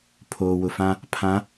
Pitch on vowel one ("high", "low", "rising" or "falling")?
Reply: low